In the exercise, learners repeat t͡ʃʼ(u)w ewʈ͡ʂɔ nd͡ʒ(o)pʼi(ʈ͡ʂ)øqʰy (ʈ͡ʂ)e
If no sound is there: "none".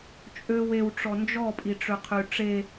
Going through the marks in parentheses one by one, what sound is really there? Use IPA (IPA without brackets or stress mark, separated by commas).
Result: ø, ɔ, ʈ͡ʂ, ʈ͡ʂ